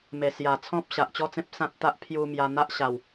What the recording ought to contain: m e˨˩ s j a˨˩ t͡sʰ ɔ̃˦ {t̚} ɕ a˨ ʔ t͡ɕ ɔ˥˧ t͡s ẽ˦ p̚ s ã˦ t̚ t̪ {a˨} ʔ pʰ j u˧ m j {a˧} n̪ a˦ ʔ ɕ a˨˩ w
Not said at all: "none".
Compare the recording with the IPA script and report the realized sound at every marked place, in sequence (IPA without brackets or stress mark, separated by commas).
p̚, a˦, a˧